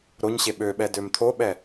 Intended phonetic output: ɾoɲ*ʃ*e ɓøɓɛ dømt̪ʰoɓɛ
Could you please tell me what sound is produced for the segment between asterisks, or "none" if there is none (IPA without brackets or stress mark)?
ɕ